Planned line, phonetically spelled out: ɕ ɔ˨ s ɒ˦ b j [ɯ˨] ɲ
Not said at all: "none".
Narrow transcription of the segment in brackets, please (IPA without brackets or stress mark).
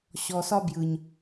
ɯ˨